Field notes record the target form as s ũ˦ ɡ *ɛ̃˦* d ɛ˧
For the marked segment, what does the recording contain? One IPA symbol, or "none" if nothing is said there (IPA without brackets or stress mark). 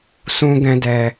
ɛ̃˦